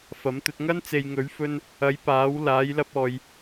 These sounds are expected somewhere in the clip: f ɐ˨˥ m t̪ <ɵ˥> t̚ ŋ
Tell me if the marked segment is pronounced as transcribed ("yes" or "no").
no